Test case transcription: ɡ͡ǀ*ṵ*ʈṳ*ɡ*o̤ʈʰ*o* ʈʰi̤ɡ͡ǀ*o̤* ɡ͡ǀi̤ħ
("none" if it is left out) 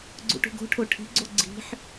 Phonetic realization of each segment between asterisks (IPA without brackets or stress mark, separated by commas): ṵ, ɡ, o, o